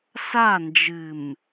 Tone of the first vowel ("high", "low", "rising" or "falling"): falling